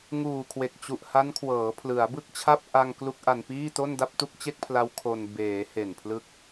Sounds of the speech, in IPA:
ŋ uː˨˩ kʰ w e˨˩ k̚ t͡ɕ u˨˩ ʔ h a˦˥ n kʰ w ɤː˩˦ pʰ l ɯ˩˦ a̯ b ɯ˥˩ k̚ t͡ɕʰ a˥˩ p̚ ʔ a˧ ŋ k l u˦˥ k̚ ʔ a˧ n p iː˥˩ t o˥˩ n d a˥˩ p̚ t u˥˩ k̚ t͡ɕ e˥˩ k̚ pʰ l a˦˥ w kʰ o˧ n b eː˩˦ h e˨˩ n pʰ l ɯ˦˥ k̚

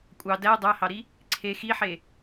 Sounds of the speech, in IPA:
kʷʼ ɑ d æ dˤ æ h ɑ ɾ i | ǀʰ e x i ħ e

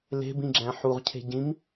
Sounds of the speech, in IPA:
l e̤ b ĩ ɡ͡ǁ æ̃ ħ u ʁ cʰ e̤ ɟ ĩ m

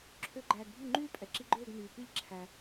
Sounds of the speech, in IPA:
ǁʰ ø˦˥ ɡ͡ǃ æː˨ ɡ bʱ y˥˩ ŋ͡ǃ yː˥˧ pʼ ɛ˨ ǁ i˦˥ ɡ͡ǃ øː˥˧ ɡ n yː˨ p i˥˩ ʎ ǁʰ æ˨

